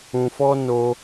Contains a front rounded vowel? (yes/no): no